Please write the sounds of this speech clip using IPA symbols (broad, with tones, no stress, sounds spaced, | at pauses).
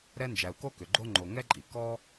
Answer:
ɾ ɛ˦ n d͡ʒ æ˨ u̯ k o˥ k ʏ˩ ɡ͡ǃ o˥ ŋ͡ǃ o˨ ŋ ɛ˥ ǃʼ i˩ k ɔ˥